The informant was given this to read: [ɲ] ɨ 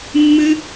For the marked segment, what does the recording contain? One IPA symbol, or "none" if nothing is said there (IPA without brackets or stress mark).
mː